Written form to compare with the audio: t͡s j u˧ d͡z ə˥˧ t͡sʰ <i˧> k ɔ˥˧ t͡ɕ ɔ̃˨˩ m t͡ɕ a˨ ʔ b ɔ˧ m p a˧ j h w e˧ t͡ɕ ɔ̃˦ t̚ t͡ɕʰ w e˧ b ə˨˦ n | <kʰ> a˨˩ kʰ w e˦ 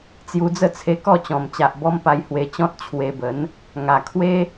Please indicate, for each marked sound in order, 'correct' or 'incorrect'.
incorrect: e˧, incorrect: ŋ

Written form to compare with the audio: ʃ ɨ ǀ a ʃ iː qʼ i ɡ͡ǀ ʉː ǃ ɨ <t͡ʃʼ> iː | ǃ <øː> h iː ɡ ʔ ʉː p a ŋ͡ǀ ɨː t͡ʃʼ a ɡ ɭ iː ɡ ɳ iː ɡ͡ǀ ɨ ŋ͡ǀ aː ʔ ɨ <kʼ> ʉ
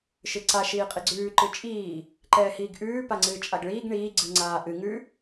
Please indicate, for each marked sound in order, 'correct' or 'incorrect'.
correct, incorrect: ɛː, incorrect: ŋ

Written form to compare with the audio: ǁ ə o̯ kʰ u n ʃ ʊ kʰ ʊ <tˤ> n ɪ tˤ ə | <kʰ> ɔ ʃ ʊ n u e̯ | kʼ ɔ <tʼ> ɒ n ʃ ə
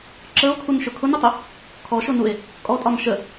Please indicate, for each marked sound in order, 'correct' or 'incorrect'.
incorrect: none, correct, correct

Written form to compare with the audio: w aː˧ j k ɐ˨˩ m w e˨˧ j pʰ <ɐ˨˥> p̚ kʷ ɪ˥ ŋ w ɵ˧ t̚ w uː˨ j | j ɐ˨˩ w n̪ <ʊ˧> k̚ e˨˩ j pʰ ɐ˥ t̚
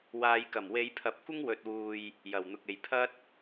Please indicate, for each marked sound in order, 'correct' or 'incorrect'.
incorrect: ɐ˨, incorrect: ʊ˨

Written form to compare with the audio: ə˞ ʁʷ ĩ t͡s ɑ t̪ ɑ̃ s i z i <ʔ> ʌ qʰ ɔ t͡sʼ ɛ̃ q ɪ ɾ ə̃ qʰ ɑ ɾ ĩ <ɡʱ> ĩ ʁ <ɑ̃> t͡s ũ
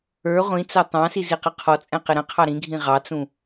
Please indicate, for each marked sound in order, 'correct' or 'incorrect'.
incorrect: q, correct, incorrect: ɑ

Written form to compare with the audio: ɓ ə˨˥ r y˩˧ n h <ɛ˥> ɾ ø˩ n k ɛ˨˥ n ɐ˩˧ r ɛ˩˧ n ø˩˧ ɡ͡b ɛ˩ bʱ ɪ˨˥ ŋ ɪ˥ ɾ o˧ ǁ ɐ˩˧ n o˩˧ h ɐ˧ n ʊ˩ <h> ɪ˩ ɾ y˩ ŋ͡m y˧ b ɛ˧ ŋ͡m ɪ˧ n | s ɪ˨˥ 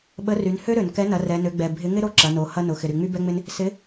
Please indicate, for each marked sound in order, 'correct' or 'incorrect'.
incorrect: ø˥, incorrect: x

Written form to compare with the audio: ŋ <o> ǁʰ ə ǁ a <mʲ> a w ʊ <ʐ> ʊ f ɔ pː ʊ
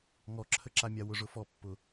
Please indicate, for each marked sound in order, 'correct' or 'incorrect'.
incorrect: ɔ, correct, correct

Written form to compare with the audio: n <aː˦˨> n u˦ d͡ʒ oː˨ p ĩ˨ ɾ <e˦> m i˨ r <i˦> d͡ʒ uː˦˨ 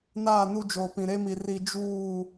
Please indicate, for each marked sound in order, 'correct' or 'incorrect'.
correct, correct, correct

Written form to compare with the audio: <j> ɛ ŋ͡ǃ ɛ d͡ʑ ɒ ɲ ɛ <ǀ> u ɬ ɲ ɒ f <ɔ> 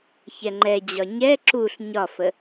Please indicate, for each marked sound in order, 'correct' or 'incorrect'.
incorrect: ç, incorrect: ǁ, incorrect: ə

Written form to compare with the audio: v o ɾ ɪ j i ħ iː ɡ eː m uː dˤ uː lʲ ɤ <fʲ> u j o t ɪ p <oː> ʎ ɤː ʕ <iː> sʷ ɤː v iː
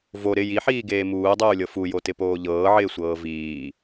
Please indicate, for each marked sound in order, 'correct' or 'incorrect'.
incorrect: f, correct, incorrect: ɪː

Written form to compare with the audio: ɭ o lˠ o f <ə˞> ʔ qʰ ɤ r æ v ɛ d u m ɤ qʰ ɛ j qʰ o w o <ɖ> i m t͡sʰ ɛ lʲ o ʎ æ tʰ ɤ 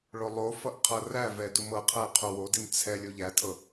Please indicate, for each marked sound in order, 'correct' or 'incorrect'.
incorrect: ʌ, incorrect: d

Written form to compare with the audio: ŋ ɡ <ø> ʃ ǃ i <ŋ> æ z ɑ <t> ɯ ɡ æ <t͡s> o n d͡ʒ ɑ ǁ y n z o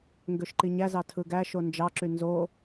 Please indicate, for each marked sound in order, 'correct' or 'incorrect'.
correct, incorrect: ɲ, incorrect: tʰ, incorrect: ʃ

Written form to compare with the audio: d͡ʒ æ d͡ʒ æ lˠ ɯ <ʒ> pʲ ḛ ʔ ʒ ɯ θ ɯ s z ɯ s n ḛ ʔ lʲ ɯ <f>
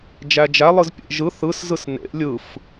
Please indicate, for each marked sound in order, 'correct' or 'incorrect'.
incorrect: z, correct

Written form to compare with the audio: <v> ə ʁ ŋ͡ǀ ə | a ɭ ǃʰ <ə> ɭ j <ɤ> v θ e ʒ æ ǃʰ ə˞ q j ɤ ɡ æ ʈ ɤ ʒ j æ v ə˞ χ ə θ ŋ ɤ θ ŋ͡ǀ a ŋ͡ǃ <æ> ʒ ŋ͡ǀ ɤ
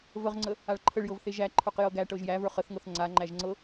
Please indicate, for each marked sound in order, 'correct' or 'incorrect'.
correct, correct, correct, correct

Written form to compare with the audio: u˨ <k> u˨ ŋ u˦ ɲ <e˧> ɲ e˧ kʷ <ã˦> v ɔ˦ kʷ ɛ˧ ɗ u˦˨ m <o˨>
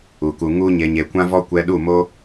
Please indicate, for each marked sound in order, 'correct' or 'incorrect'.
correct, correct, correct, incorrect: o˦

